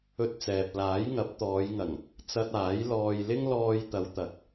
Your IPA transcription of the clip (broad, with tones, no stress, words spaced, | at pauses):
ɵ˧t̚t͡sɛː˨p̚laː˨˥j ŋɐ˨˥p̚t̪ɔː˨˧jŋɐ˨˩ŋ | t͡sɐ˧t̚aː˨˥jlɔː˧jlɪ˥ŋ lɔː˧jt̪ɐ˨˧wt̪ɐ˨k̚